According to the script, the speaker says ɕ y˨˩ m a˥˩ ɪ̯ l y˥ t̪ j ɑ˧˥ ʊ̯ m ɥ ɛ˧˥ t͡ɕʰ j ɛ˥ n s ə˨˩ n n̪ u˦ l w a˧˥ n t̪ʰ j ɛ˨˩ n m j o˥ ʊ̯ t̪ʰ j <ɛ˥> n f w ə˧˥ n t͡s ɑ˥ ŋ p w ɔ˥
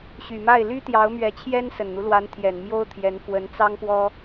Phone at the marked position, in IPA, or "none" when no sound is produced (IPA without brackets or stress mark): ɛ˧˥